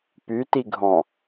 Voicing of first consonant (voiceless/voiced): voiceless